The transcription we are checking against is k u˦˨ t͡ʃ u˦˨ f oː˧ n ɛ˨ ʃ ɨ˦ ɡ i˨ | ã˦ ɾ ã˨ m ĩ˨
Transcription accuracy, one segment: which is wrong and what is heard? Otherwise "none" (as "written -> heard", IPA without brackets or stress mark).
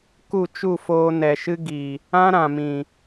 none